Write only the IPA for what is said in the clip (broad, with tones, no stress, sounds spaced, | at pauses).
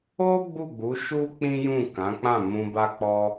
o˦ ɡ͡b u˦˨ ɡ͡b u˨˦ ʃ u˦ k͡p ĩ˦ j ũ˦˨ k ã˨˦ k͡p ã˦˨ m ũ˧ b a˦ k͡p ɔ˦